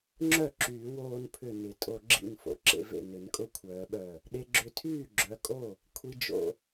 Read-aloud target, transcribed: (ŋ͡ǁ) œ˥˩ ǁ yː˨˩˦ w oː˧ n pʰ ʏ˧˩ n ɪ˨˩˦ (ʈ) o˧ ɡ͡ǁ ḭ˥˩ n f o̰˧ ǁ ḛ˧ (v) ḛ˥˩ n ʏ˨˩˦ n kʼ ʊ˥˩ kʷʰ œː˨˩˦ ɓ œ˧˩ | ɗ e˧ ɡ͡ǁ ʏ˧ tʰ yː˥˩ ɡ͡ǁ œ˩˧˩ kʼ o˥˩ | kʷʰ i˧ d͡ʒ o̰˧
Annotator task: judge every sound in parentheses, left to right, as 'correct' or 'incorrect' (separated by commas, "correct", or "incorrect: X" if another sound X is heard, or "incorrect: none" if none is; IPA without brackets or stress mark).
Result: correct, incorrect: tʼ, correct